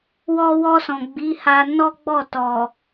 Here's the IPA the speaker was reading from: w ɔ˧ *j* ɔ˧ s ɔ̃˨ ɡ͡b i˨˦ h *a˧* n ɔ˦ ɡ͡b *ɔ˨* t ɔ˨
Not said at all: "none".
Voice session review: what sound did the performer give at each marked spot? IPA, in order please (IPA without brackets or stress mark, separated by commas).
w, a˧, ɔ˦˨